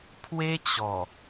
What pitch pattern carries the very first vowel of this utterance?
high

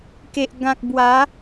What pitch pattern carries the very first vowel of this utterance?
low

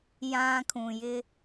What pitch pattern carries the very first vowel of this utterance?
low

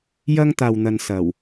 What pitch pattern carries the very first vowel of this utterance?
high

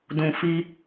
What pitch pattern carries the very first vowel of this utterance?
low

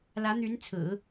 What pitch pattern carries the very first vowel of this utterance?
rising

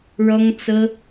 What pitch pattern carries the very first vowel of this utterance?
high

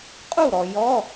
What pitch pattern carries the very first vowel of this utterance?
falling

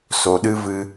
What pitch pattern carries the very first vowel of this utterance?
low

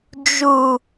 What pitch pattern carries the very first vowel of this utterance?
low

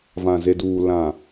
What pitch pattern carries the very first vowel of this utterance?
low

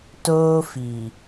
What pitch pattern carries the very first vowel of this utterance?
high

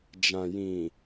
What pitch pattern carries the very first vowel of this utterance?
low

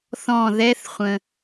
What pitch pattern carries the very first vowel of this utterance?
falling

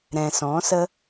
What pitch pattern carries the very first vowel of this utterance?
low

